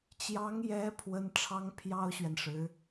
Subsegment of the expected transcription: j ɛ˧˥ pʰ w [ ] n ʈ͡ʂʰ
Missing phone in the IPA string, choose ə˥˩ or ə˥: ə˥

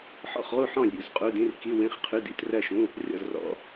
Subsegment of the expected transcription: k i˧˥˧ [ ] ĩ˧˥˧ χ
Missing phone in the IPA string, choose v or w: w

